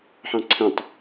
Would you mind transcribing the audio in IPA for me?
ħ ɑ̃ ǀʰ ə̃ tˤ

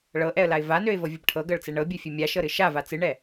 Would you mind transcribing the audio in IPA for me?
ɭ ɤ ʔ ɛ ə̯ l a ɪ̯ v a n ø ɪ̯ v ɤ vʲ ɨ b ʈʰ ɤ ɡ ɤ ɭ t͡s ɛ ɳ ɤ bʲ ɨ fʲ e mʲ a ʃ ɤ ɾ ɨ ʃ a v a t͡s ɨ ɳ ɛ

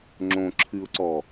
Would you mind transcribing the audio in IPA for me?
ŋ͡ǁ õ ǁʰ ɨ ʊ̯ ǀ ɔ

